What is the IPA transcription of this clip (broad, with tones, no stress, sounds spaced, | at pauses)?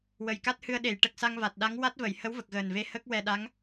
w ə˨˩ j k a˦˥ t̚ h ɨ˧ ə̯ ɗ e˨˩˨ j ʈ ə˨˩ k̚ s a˧ ŋ v a˨˩ t̚ ɗ a˧˥ ŋ w a˦˥ t̚ v ə˨˩˨ j h ə˧˥ w v ə˨˩ k̚ ɣ əː˨˩ n v e˧ h ə˦˥ k̚ w ɛ˧ ɗ a˧˥ ŋ